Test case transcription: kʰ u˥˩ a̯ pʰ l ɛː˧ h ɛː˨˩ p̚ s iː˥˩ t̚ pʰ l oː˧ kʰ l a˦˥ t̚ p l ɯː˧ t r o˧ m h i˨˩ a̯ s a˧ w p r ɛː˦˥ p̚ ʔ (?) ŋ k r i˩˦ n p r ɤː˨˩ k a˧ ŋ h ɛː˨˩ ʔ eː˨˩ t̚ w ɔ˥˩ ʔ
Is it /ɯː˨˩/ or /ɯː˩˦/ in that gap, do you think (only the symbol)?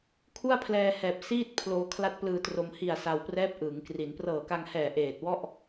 ɯː˩˦